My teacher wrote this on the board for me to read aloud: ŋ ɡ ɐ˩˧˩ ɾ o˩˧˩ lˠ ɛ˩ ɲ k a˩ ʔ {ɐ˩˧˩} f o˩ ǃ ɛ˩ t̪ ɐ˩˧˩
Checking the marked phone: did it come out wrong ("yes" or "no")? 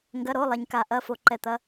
no